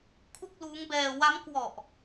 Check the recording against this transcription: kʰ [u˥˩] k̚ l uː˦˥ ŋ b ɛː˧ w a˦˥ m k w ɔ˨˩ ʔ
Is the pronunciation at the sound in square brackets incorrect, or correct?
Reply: correct